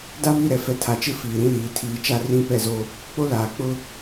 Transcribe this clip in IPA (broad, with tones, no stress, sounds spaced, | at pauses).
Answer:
d a˦ β i˦˨ ɾ ɛ˨ f ɛ˦ tʰ a˨ t͡ʃ ɪ˦ f iː˨ ɾ ĩ˦ l iː˨ tʰ iː˨ t͡ʃ a˦ r ĩ˦˨ p ɛ˦˨ z o˦ | k͡p o˦ l aː˨ k͡p ʊ˦